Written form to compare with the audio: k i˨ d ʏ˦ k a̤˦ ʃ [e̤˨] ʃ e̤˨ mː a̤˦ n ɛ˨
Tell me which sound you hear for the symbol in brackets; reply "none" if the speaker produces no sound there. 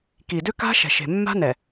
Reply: ɛ̤˨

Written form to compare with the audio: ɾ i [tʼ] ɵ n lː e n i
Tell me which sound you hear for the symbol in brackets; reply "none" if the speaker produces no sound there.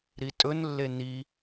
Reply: tʼ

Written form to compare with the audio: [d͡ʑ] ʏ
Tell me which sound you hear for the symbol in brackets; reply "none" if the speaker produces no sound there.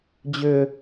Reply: d͡ʑ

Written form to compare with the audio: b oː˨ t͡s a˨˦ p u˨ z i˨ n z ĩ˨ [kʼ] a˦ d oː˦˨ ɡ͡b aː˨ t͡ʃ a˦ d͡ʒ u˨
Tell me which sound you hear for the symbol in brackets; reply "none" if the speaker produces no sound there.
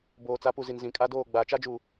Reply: kʼ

